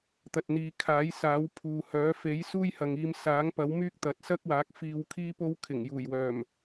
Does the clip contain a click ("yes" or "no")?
no